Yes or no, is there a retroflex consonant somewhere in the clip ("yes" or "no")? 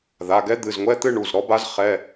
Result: yes